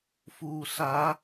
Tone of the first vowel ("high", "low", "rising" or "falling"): low